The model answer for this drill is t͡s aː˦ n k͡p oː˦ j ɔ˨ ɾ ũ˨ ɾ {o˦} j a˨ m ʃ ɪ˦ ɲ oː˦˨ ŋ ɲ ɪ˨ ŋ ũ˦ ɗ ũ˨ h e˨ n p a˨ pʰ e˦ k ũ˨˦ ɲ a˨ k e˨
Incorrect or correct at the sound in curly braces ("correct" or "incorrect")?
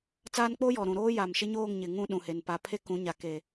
incorrect